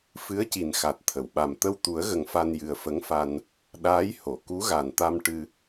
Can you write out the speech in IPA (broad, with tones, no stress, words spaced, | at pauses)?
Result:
fɨ˧˥ə̯ci˨˩nxa˨˩t̚ t̪ʰə˨˩˨wɓa˨˩m t̪ə˧wt̪u˨˩˦ə̯ɣə˨˩ŋ fa˧njɨ˨˩ə̯fə˧˥ŋfa˧n | ɗaː˧˥jho˨˩˨ ku˧˥ɣa˨˩nt̪a˧m ʈɨ˧